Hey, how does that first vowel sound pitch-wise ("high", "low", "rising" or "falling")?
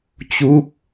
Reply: rising